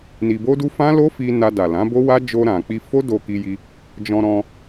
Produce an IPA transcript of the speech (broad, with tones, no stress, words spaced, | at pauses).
ni˧bo˦du˦ fã˦lo˦fi˧ na˧da˨lã˨˦ bo˦wa˦ d͡ʒo˧ɾã˨k͡pi˧ fo˦do˧ki˧ji˧ | d͡ʒɔ̃˧ ɾɔ̃˧